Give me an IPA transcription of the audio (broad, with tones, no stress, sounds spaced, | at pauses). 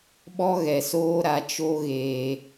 ɓ ɔ˦ ɣ ɛ˨ s oː˦ ɾ a˨ t͡ʃ o˦ ɣ eː˨